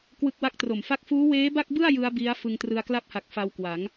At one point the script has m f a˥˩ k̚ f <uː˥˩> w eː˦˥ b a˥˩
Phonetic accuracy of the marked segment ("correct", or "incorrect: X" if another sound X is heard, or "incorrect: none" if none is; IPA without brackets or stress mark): incorrect: uː˦˥